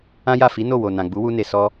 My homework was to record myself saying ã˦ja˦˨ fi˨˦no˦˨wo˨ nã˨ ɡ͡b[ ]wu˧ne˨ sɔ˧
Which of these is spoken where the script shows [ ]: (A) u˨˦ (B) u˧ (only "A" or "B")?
A